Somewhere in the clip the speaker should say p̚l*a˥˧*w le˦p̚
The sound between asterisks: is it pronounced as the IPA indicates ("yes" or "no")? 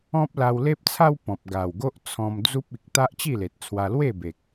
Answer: no